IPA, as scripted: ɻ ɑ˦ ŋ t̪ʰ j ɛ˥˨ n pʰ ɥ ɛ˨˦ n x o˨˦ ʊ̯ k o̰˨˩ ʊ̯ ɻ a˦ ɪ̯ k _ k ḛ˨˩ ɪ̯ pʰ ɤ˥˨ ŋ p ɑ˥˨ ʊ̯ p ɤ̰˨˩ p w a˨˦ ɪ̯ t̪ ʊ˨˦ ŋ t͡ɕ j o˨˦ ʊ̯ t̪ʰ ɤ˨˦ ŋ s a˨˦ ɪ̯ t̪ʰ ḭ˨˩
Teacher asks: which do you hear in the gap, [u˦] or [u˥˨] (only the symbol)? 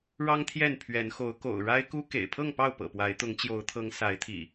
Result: u˦